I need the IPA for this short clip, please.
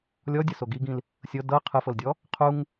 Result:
lʲ ɔ dʲ ɯ s o ɡ i ɡ ĩ l | sʲ ɤ d ɤ qʰ ɯ f ɤ l dʲ ɔ | qʰ u ŋ

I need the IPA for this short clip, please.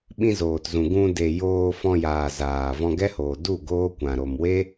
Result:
ɓ ĩ˧ z oː˨ t z ũ˨ ɡ ũ˧ d e˨ j oː˧ f ɔ̃˧ j aː˨ z aː˨ v ɔ̃˧ ɡ ɛ˦ h oː˨ d u˦˨ ɡ oː˦ kʷ ã˨ ɾ o˨ m w e˦

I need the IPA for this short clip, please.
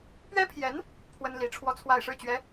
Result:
p ɥ ɛ˥ pʰ j ɛ˧˥ n | pʰ w ə˥ n l i˧˥ ʈ͡ʂʰ w ɔ˥˧ t͡sʰ w a˥˧ ɪ̯ ʂ ɻ̩˥˩ t͡ɕ ɥ ɛ˧˥

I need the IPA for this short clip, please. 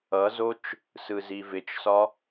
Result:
ʌ z o t͡ʃ | s ɯ z i v ɪ t͡ʃ s ɒ

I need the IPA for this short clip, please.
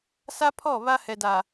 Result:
s a˦ pʰ ɔ˦˨ β a˦ h ɛ˨ d a˨

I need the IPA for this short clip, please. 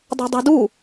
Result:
dˤ ɛ̤ dˤ i̤ d u

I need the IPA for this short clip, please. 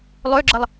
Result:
lˠ ø ɡ͡ǁ ə lˠ

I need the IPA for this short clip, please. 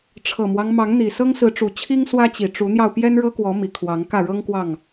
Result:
ʈ͡ʂʰ ɤ˨˩ m w ɑ˦ ŋ m ɑ˨˦ ŋ n̪ i˨˩ s ɤ˦ ŋ s ɹ̩˨˦ ʈ͡ʂ u˨˩ t͡ɕʰ i˦ ŋ s w ä˦ t͡ɕ i˨˩ ʈ͡ʂ u˨˦ n̪ j ɑ˧ ʊ̯ p j ɛ˦ n ɻ ɤ˦ k w ɔ˨˦ m i˨˩ kʰ w ɑ˨˦ ŋ k ä˥˨ ɻ ɤ˦ ŋ k w ɑ˥˨ ŋ

